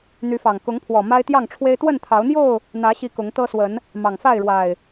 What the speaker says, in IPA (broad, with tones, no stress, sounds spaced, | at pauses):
n̪ y˨˦ f ɑ˨˩ ŋ k ʊ˨˦ ŋ pʰ w ɔ˨˩ m a˦ ɪ̯ t̪ j ɑ˥˨ ŋ ʈ͡ʂʰ w e˦ ɪ̯ t̪ w ə˥˨ n t̪ʰ ɑ˨˦ ʊ̯ n̪ j o˥˨ ʊ̯ | n̪ ä˨˦ ɕ i˨˦ k ʊ˨˦ ŋ t̪ ɤ˦ s w ə˨˦ n | m ɑ˨˩ ŋ f a˥˨ ɪ̯ ɻ w a˨˩ ɪ̯